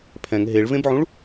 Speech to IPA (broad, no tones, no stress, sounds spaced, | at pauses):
pʰ ɛ̃ ŋ ɦ e ɭ v ẽ b ʕ ũ ɭ